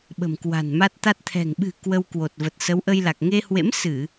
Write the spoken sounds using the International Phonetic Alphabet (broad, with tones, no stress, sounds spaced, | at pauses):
ɓ ə̤˨˩ m k w a̤˨˩ n m a˦˥ t̚ t̪ a˦˥ t̚ t̪ʰ ɛ̤˨˩ ŋ ɓ ɨ̤˨˩ k w ə˧ w k w o˨˩ t̚ v ə˨˩ t̚ s ə˨˦ w ʔ ə˧ j l a˨˩ k̚ ŋ e˧ h w ḛ˧˥ m s ɨ˧˩˨